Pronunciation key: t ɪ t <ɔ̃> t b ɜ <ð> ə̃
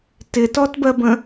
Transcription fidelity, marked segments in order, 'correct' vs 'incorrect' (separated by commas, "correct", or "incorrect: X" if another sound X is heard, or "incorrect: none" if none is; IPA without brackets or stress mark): incorrect: ɔ, incorrect: b